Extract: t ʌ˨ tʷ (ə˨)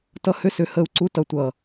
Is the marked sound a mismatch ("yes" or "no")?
yes